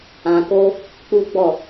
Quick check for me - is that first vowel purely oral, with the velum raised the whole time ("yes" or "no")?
no